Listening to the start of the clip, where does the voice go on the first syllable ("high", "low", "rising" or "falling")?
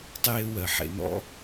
high